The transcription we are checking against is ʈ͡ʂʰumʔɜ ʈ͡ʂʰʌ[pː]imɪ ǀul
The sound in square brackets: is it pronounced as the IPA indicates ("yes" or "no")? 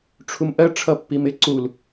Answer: yes